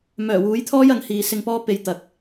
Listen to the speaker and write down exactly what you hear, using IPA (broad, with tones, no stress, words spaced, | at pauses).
mœː˨˩wuː˨˥jt̪ʰɔː˥jɐ˨˧ŋ hiː˨sɪ˧ŋpɔː˥ pe˧jt̪ɐ˨k̚